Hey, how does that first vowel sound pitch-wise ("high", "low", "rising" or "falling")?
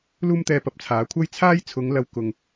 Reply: high